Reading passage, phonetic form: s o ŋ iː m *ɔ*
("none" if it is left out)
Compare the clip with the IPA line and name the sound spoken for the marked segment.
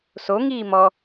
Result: ɔ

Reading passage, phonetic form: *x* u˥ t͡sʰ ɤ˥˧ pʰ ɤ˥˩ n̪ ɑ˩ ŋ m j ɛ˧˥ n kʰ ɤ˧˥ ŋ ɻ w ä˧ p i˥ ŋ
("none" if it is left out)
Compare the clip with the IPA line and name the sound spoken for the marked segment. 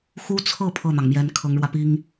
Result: x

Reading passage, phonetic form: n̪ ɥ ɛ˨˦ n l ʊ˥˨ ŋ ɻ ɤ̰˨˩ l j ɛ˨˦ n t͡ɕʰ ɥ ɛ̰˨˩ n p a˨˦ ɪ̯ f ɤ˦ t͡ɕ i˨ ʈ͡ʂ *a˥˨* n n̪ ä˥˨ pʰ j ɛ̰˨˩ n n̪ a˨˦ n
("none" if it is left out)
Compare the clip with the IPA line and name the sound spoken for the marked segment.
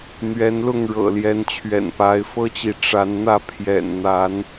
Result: a˨˦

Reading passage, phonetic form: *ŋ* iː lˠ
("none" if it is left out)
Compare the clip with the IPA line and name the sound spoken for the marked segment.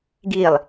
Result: ɡ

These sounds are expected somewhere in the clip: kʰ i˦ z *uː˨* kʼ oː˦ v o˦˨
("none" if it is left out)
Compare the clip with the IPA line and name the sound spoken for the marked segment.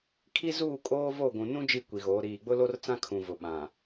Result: uː˦˨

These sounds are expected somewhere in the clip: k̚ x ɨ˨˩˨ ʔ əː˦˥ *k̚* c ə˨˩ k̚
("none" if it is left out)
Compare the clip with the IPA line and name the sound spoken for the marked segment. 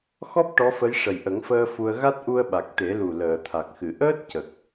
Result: t̚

